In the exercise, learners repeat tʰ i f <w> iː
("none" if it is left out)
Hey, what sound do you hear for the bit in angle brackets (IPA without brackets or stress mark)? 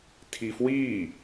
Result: w